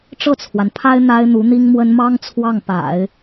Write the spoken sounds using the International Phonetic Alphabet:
ʈ͡ʂ ɤ˥˩ t͡sʰ w a˩ n pʰ a˥ ɪ̯ n̪ a˥ ɪ̯ n̪ u˧˥ n̪ i˥ ŋ m w ə˥ n m ɑ˥ ŋ t͡sʰ w ɑ˥˩ ŋ p a̰˨˩˦ ɪ̯

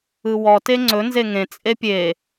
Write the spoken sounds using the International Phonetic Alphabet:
ɯ w ɔ t e ŋ͡ǀ ɵ n z e ŋ ẽ t͡sʼ e pʲ e

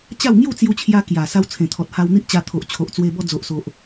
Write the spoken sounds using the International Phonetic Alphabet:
t͡ɕ a˥˧ w ŋ j u˥˧ t͡s j u˧ t͡ɕʰ j a˧ k j a˨˩ s a˧ w t͡sʰ ẽ˨˩ t̪ʰ ɔ˨ t̚ h a˧ w n̪ i˦ ʔ t͡ɕ a˧ t̪ʰ o˨ ʔ t͡ɕʰ o˨ ʔ t͡s w e˧ b ɔ˧ d͡z o˨ ʔ s o˨ ʔ

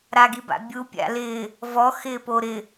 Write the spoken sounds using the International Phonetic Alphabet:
ɾ a ɡ i b a̰ bʲ u pʲ a̰ l ɪː | v ɔ x ɪː p o ɾ ɪ

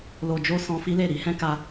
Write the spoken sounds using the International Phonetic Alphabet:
l o˨ d͡ʒ o˧ s ɔ̃˧ f i˦ l e˦˨ ɾ i˧ h ɛ̃˦ k a˧

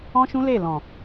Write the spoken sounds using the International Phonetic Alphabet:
ɔ̃˦ ʃ ũ˦ l e˦˨ l ɔ̃˨

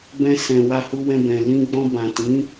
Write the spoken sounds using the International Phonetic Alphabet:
b ɛ̃˧ s ɛ̃˨ w a˧ h u˧ w ɛ̃˧ b ɛ̃˨ l ĩ˧ ɡ͡b ɔ̃˧ b ã˨ t ĩ˨˦

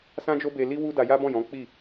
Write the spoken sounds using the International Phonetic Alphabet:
s ã˦ d͡ʒ o˦ b e˧ l i˦ w u˦ d a˧ j a˦ b ɔ̃˦˨ j ɔ̃˨˦ k͡p i˦˨

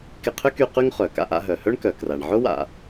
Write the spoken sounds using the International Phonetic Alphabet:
k ɪ˧ qʰ ʏ˥ k y˧ q y˥ ŋ χ œ˩ k a̰˧ ʔ a̰˧ ɦ œ˩ h œ˥ ɳ k œ˩ k r a˩ ɳ ʕ ʊ˥ w a̰˩

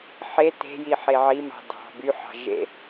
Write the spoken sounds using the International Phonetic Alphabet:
ħ e t e̤ j i ħ e ʕ i m ɑ̤ d ɑ̤ b y ħ ɑ̤ ʒ ḛ

